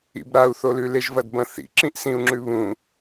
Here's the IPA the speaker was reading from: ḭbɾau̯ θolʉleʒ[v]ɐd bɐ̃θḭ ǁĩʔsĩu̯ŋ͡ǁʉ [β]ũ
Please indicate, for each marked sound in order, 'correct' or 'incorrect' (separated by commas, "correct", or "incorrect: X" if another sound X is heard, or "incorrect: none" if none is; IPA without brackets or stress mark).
correct, correct